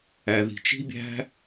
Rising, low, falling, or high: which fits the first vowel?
low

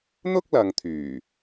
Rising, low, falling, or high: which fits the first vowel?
high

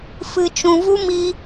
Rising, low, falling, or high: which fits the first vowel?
low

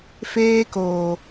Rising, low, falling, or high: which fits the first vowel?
high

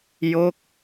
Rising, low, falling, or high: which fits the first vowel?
falling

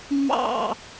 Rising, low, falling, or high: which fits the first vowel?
falling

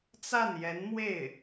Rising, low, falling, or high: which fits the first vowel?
falling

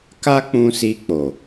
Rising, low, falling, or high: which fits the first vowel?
high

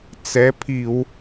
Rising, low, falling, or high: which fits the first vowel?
rising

